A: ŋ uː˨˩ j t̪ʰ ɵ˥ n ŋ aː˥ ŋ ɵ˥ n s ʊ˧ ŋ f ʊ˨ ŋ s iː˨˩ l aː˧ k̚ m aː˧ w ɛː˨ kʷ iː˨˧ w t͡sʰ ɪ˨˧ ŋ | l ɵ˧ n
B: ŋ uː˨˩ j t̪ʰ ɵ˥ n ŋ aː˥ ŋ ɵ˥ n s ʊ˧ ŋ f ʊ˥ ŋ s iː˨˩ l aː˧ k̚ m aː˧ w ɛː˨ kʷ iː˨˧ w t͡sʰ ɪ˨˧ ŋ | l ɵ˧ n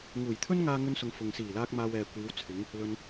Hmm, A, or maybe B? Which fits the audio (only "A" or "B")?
A